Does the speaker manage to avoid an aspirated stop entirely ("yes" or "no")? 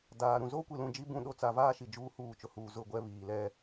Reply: yes